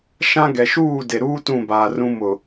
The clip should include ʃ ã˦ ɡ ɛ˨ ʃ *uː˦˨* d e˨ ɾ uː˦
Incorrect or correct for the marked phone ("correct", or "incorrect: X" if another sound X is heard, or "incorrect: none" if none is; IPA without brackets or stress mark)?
correct